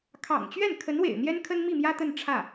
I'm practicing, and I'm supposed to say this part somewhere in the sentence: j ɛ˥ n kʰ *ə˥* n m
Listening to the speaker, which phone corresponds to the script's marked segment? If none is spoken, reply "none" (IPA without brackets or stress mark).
ə˥